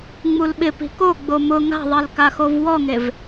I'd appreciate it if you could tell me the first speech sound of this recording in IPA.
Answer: ŋ͡m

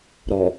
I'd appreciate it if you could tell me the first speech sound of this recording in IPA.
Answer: ɾ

